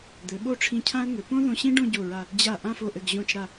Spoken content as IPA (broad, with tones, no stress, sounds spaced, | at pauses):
d̪ ɘ˩˧ ɓ o˥˧ ʈ͡ʂʰ ĩ˧˩ cʰ ã˥ ə̯ ŋ ɘ˩˧ p õ˥ ð õ˧ ɕ ĩ˥ ɖ õ˥˧ ɟ o˧˩ ɹ a˧˩ | d͡ʑ a˧˩ ʔ ã˥˧ f o˧˩ ʔ ɘ˧˩ ɡ ʑ õ˧˩ t͡ʃ ɾ a˧˩